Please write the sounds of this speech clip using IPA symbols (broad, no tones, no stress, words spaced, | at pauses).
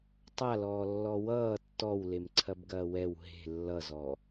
tˤalɔːlːɔ wʌː tːɔwlem ǀʰɐbɡɐːwɛw ɦe̤ lːʌzɔ